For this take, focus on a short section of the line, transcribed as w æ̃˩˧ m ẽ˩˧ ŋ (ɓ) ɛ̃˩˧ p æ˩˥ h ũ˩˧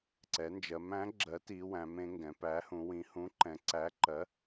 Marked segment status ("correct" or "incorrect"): incorrect